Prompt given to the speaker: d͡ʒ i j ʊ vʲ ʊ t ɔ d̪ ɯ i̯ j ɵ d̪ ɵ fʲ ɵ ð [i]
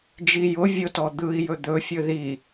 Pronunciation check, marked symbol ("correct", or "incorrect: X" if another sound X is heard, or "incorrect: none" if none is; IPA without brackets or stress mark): correct